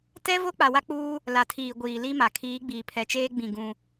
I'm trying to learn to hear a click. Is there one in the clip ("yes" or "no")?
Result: no